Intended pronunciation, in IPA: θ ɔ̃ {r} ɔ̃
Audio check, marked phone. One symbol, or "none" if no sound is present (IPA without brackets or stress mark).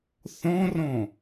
r